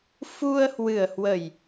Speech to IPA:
fu˧ə̯hwɨ˨˩ə̯hwə˨˩j

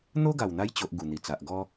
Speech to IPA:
n̪o˦ɡa˨˩wn̪a˧jt͡ɕo˨ʔ ɡu˨˩n̪i˨˩t͡sa˨ʔɡɔ˦

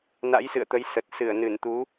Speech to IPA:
na̰˧˥jsɨ̰˧˨ə̯t̪ə˨˦j sə˨˩t̚ sɨ˧˩ə̯nɨ˧˩nt̪u˨˦

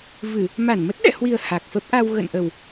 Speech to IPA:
vɨ˧˩˨ | ma˧˩nmə˦˥t̚ɗɛ̰˧˨hwi˨˩ə̯ ha˨˩k̚fə˦˥p̚ʔa˧w ɣə̰˧˨nʔə˨˩w

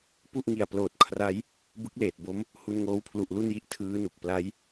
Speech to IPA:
pu˥˩ʔŋi˨˩a̯ploː˨˩t̚ kʰra˦˥j | bɯ˦˥k̚leː˨˩t̚bo˦˥m | hu˧nŋoː˦˥wpʰlu˨˩ʔ lu˥˩nji˦˥ʔ tʰɯː˦˥nu˨˩k̚ pla˦˥j

